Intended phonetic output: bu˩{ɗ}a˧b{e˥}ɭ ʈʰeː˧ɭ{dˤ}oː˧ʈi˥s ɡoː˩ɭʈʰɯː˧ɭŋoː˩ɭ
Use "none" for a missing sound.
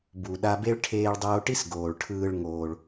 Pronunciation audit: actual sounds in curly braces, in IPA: ɗ, e˥, dˤ

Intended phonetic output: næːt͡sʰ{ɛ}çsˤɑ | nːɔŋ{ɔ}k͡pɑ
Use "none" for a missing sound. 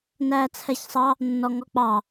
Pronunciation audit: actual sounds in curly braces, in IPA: ɛ, ɔ

